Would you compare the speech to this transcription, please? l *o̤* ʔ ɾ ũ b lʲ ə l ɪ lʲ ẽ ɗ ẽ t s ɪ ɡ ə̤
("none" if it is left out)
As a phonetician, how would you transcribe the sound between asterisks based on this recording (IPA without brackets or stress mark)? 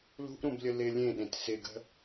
ṳ